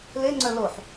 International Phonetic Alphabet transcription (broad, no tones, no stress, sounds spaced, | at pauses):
l e ŋ͡ǀ œ l o ħ